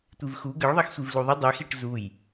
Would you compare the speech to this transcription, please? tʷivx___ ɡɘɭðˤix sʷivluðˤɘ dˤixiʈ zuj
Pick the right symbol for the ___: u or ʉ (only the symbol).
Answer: u